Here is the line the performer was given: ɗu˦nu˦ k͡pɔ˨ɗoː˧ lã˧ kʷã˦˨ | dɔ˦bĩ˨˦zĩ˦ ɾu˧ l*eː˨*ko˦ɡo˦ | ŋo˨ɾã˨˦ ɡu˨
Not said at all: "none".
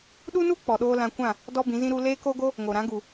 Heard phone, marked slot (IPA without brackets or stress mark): eː˦